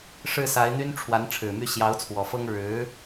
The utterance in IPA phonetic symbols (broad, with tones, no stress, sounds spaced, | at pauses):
ʂ ɻ̩˥˩ s a˧˥ ɪ̯ n̪ y˥ n ʈ͡ʂʰ w a˧˥ n ʈ͡ʂʰ ɻ̩˨˩ m y˥˩ ɕ j ɑ˧˥ ʊ̯ t͡sʰ w ɔ˨˩ f ɤ˥ ŋ ɻ ɻ̩˧˥